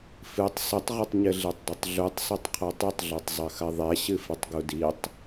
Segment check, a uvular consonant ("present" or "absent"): present